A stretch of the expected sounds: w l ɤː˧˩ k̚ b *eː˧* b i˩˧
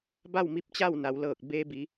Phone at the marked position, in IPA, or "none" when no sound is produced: eː˧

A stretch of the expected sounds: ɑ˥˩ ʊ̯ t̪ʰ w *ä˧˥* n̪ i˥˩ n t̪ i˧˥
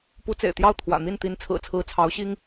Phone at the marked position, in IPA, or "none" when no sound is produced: ä̰˨˩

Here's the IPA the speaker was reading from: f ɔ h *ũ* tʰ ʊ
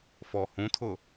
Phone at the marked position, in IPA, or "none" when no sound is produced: ũ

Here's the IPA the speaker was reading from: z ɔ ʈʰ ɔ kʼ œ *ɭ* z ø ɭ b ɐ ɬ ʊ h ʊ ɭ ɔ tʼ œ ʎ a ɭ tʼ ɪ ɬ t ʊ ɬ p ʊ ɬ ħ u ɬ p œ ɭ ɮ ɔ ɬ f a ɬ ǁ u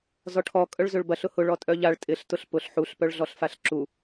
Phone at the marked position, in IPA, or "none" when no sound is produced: ɭ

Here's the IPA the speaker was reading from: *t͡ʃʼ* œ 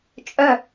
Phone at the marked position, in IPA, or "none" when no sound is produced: t͡ʃʼ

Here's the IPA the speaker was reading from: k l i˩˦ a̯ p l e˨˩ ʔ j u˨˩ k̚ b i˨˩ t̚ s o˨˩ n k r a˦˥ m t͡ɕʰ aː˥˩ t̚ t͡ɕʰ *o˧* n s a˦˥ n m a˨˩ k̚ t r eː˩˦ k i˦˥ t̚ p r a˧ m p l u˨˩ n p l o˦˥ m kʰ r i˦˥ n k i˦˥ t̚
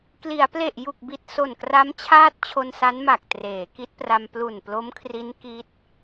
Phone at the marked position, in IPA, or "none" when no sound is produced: o˧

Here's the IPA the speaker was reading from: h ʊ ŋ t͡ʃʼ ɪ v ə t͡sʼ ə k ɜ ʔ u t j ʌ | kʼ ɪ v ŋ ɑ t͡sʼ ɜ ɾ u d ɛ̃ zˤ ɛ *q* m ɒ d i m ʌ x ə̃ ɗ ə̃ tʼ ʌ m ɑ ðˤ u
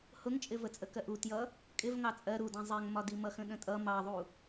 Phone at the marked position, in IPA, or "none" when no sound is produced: ŋ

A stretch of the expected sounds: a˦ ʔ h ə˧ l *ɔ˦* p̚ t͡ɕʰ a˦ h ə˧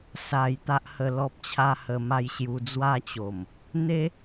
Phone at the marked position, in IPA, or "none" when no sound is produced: ɔ˦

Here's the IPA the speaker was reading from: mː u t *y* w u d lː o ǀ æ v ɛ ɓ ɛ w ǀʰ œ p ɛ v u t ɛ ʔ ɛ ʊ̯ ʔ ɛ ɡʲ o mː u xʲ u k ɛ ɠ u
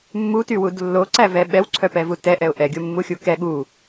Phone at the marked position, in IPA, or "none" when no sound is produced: y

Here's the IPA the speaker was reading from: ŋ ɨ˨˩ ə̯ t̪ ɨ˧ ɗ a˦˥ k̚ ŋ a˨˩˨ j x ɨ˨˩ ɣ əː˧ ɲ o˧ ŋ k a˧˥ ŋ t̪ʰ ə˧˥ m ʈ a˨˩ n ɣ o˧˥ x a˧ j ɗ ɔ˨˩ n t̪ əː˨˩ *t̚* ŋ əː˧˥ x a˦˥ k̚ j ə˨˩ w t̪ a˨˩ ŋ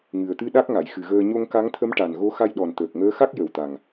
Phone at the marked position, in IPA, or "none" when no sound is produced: k̚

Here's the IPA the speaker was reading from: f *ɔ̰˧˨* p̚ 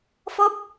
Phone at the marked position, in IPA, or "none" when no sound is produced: ɔ˦˥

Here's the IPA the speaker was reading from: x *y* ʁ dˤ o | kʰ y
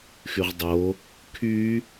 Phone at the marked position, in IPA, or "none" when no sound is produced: y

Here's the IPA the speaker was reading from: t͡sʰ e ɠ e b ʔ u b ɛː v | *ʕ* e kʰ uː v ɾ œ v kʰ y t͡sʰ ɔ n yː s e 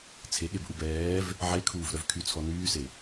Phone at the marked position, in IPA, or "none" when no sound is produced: ʕ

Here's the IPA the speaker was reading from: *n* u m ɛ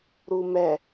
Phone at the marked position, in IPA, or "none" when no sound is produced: ɾ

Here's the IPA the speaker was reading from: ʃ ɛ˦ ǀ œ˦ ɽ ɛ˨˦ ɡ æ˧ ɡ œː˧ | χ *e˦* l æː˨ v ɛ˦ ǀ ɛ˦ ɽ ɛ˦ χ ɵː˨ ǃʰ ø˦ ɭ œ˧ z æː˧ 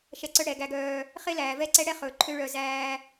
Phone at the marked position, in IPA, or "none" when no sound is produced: e˦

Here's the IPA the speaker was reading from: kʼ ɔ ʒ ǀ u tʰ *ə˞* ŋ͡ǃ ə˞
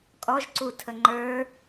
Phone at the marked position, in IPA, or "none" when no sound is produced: ə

